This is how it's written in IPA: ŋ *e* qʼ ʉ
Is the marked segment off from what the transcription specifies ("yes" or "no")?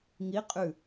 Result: yes